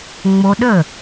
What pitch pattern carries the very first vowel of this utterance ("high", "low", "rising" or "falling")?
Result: high